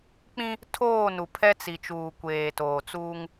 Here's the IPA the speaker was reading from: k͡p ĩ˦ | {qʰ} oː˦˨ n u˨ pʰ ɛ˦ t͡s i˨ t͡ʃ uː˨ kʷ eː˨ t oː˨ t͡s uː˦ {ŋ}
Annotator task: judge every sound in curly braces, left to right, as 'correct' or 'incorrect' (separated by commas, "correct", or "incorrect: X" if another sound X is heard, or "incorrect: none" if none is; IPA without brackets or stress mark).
incorrect: tʰ, correct